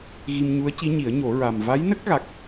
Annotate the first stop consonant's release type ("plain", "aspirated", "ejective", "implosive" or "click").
plain